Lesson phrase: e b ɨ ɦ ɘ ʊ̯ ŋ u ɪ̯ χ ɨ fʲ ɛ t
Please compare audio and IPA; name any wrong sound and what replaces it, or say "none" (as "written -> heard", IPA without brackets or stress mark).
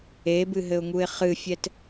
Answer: none